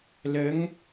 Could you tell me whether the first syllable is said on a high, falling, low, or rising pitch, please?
rising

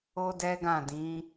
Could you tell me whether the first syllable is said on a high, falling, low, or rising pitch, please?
high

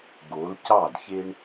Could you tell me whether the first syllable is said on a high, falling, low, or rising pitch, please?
rising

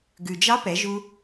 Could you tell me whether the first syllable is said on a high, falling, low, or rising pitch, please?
low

